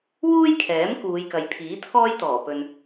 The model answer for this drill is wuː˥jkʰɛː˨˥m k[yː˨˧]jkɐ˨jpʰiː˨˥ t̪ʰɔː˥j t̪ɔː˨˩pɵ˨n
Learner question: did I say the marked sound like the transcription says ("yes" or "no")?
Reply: no